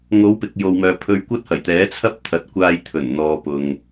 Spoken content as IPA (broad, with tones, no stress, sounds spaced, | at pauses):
ŋ o˨˧ w p ɪ˨ k̚ j o˨ w m œː˨ pʰ ɵ˧ ɥ kʷ ɐ˥ t̚ h ɐ˨˩ j t̪ ɛː˨˥ t͡sʰ ɐ˥ p̚ t̪ʰ ɐ˨ t̚ kʷ aː˧ j t̪ʰ ɵ˨˩ n n̪ ɔː˨ p ʊ˨ ŋ